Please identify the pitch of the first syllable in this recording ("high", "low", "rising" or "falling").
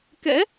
rising